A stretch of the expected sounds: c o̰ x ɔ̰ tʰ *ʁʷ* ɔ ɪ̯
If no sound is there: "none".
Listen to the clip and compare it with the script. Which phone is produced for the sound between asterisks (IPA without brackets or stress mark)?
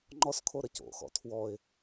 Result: w